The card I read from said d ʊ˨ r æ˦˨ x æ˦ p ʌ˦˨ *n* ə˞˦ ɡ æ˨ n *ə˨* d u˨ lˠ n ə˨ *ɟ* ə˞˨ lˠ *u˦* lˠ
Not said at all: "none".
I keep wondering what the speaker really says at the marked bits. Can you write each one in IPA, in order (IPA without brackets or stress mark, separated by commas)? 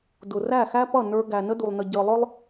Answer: n, ə˦, ɟ, ʊ˦